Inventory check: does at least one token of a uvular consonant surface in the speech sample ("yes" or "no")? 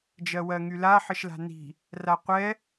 yes